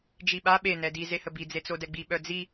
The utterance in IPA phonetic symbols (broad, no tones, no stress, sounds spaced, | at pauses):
d͡ʒ i ɓ a ɓ e n ɛ d i z e h ə b i d͡z e t͡s o d ɛ ɡ͡b i ɓ œ d͡z i